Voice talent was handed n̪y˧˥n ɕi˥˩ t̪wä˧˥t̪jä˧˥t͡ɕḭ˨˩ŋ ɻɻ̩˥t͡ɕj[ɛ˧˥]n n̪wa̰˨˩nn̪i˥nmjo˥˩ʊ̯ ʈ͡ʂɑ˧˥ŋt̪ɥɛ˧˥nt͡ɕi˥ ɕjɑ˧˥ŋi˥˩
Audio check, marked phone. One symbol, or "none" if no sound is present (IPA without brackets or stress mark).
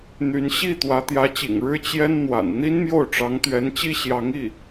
ɛ˥